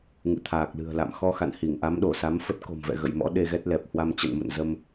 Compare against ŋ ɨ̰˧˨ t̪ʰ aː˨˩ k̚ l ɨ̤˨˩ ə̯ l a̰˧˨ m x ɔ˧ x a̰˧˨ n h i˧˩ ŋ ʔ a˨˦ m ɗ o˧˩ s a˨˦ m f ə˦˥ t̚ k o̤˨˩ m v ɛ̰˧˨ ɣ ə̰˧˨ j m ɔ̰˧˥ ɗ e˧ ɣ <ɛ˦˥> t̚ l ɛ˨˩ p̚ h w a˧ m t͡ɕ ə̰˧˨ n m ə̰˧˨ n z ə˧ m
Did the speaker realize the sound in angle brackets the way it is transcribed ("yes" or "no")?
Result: yes